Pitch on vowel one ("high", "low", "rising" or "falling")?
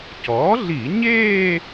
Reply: rising